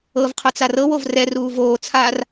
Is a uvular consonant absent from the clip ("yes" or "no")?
no